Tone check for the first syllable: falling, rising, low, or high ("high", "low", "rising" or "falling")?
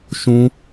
high